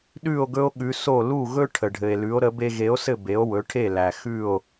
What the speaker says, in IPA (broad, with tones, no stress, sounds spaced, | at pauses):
ɗ ʉ˥˩ o̯ ɡ ɵ˥ o̯ ɠ ʉ˩˥ s o˥˩ l u˥˩ ɣ ɵ˥ ʈʰ ə˩ ɖʱ ɘ˩ e̯ l ʉ˩˥ o̯ ɾ ə˩˥ b e˧ ɣ e˩˥ o̯ s ɘ˥˩ b e˩˥ o̯ w ɵ˩˥ ʈʰ e˥˩ l æ˩ x ʉ˥˩ o̯